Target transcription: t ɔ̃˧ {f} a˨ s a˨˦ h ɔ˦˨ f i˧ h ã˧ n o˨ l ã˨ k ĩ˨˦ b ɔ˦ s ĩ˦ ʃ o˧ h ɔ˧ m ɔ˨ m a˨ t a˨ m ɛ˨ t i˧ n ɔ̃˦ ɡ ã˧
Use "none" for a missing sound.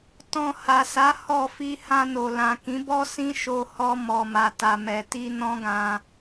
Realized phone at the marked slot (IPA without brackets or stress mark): h